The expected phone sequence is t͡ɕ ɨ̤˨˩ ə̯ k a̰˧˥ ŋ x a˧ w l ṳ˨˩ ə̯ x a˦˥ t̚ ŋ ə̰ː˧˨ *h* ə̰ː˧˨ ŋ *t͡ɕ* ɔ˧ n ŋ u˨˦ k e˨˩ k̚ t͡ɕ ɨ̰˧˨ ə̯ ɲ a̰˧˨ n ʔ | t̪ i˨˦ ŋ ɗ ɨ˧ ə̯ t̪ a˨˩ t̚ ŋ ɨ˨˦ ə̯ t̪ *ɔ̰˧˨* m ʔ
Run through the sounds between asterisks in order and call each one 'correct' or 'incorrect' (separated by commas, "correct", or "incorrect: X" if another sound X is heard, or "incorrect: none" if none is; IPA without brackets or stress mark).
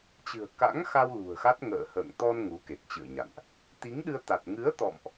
correct, incorrect: t̪, correct